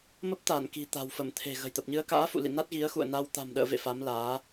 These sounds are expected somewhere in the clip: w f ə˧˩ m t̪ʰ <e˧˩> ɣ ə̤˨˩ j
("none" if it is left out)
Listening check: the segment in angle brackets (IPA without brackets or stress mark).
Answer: e̤˨˩